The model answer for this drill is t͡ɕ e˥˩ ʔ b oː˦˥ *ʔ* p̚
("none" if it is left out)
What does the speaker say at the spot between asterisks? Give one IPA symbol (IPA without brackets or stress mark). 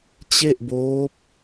none